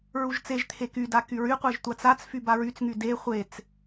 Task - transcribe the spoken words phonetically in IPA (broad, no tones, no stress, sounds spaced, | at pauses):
ɹ u ʒ t͡s e ʒ t̪ʰ e k y d a k y ɹ y qʷ e ʒ tʷ a t͡s a t͡s f y b a ɹ y t͡s ŋ y d e χʷ e t͡s